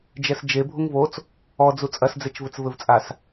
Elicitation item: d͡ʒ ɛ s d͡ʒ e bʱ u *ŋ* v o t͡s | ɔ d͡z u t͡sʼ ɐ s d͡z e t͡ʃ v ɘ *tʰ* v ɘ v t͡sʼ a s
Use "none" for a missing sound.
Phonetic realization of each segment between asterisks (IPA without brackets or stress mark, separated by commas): ŋ, t͡s